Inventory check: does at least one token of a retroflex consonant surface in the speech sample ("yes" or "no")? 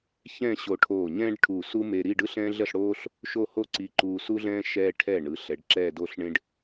yes